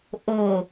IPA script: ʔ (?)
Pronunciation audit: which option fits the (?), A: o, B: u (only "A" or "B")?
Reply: A